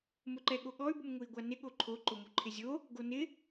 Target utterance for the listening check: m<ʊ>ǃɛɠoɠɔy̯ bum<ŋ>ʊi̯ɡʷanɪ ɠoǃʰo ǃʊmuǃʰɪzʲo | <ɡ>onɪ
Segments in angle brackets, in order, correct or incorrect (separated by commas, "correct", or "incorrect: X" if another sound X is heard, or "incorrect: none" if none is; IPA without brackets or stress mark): correct, correct, correct